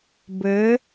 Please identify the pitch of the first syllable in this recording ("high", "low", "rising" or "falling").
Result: rising